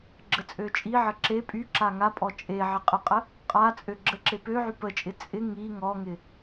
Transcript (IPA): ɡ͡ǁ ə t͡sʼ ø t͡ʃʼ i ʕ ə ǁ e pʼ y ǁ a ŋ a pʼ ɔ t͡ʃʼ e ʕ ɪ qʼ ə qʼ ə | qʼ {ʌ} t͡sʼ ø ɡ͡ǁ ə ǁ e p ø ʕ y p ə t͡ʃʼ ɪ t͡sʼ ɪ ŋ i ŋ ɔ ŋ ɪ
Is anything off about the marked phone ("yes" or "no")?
yes